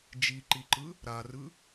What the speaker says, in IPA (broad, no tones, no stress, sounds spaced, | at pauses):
d͡ʒ i ǃ i ǃ ɯ | ɾ a r ɯ